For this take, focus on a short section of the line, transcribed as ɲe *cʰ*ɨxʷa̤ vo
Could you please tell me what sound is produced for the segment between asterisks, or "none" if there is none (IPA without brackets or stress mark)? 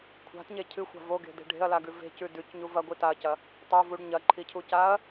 cʰ